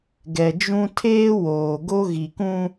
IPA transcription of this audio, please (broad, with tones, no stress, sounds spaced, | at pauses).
ɡ ɛ˨ d͡ʒ ũ˦ tʰ eː˦ w oː˨ ɡ o˦ ɣ i˨ k ũ˦